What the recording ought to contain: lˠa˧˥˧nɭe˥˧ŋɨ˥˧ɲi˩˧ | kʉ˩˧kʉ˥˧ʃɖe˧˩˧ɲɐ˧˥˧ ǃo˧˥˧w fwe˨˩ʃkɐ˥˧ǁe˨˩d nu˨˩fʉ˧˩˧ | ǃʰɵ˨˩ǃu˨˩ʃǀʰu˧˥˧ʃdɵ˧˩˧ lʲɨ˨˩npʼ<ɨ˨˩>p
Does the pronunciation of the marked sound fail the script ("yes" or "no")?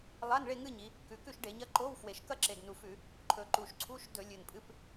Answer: yes